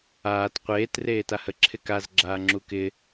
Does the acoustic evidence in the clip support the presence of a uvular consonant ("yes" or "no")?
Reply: yes